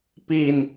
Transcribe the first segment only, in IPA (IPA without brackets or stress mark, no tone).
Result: p